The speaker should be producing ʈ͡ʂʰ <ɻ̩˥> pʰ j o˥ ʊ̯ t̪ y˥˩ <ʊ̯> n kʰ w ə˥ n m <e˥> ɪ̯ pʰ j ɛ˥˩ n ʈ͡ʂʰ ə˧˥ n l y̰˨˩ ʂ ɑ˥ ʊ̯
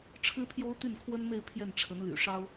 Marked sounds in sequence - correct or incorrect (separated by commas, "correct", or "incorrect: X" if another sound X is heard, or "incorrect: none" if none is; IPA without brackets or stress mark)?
correct, incorrect: none, incorrect: e˥˧